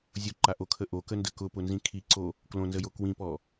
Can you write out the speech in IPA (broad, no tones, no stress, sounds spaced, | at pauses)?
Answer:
zʲ ʊ ǃ a ʔ o kʰ ə ʔ o k ə n d ə k ʊ p ʊ n z ĩ kʰ i ǀ o | k l õ n z ə j o k w ĩ p ɔ